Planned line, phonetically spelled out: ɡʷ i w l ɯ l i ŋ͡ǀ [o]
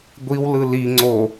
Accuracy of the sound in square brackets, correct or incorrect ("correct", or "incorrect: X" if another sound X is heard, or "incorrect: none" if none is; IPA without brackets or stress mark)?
correct